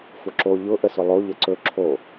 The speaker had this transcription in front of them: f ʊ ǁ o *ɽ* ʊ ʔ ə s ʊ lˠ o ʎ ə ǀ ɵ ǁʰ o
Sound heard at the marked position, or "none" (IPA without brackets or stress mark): ʎ